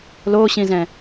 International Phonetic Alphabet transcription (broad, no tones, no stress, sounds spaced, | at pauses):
l o ɕ ĩ z ɛ̃